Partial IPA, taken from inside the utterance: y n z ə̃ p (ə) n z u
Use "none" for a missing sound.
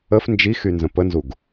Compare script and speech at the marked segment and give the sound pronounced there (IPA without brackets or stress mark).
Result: ə